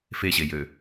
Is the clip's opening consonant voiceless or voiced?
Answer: voiceless